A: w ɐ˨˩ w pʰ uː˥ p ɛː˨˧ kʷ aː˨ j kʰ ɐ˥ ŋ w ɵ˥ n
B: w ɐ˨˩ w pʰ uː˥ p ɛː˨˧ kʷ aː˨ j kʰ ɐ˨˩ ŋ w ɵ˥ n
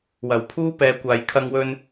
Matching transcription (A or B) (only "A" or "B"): A